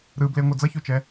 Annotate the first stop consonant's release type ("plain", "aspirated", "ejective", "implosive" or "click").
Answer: plain